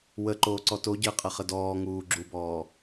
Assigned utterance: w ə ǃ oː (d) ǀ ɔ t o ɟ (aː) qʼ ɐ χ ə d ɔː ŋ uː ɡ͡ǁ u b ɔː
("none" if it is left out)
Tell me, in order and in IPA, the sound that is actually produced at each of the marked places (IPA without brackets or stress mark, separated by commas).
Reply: none, əː